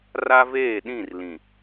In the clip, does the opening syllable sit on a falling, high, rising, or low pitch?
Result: high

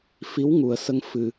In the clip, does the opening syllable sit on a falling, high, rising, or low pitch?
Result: rising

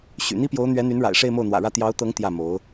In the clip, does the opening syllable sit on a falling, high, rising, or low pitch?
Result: low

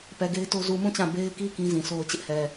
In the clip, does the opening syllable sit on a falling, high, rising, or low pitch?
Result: low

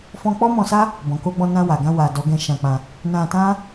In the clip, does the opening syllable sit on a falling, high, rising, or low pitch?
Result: high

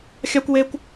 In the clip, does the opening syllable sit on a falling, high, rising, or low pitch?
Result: high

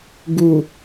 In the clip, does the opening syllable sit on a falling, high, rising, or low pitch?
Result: low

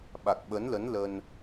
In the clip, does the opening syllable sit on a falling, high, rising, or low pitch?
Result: low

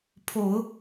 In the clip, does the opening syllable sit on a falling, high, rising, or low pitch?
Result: low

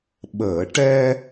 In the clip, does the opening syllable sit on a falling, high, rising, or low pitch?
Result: low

